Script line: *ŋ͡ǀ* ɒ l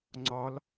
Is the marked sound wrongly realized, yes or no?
no